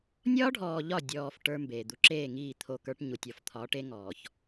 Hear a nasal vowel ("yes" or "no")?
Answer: no